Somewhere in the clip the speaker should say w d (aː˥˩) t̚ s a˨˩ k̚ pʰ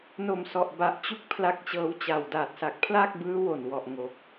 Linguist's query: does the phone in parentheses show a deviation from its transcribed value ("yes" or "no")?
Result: yes